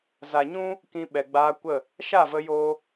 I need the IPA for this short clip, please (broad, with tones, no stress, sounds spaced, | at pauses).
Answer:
z a˨ ɲ ũ˦ | k ĩ˧ ɓ ɛ˨ ɡ͡b aː˧ kʷ ə˦˨ | ʃ a˦˨ v ə˧ j oː˦